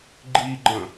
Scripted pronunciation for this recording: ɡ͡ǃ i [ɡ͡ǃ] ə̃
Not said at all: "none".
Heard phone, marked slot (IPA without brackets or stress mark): ɡ͡ǃ